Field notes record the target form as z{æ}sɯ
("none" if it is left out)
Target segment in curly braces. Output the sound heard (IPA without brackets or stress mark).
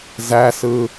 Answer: æ